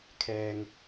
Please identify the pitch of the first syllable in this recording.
low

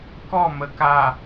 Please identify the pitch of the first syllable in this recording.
falling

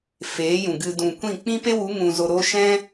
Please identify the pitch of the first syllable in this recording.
rising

